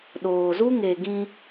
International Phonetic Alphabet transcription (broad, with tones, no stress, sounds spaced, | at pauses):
ɗ oː˨ z u˦ ŋ e˨ ɡ ĩ˧